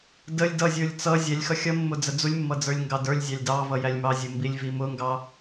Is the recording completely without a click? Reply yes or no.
yes